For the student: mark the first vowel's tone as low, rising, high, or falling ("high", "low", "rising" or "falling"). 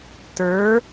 rising